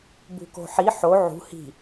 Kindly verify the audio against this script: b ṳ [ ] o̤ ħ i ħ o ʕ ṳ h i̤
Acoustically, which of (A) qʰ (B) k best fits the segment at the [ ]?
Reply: B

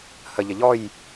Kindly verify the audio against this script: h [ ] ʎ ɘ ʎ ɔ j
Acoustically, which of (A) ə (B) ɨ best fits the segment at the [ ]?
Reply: A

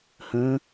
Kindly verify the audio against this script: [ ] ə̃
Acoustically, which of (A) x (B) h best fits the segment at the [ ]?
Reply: B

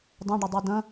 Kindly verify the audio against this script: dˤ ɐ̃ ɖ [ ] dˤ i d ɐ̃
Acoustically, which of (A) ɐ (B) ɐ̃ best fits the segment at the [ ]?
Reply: A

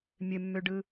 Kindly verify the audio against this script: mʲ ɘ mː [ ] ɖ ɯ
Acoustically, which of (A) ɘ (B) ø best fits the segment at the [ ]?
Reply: B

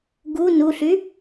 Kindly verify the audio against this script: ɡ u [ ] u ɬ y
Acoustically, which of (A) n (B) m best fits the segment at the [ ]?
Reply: A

